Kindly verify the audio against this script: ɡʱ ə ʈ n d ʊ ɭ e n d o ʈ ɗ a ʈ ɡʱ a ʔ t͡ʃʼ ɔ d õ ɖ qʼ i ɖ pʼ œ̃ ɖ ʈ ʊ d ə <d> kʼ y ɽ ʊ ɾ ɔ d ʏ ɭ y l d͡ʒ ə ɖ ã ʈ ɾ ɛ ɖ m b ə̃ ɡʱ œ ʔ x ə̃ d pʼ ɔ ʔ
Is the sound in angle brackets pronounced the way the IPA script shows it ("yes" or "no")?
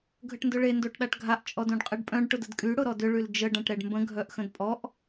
yes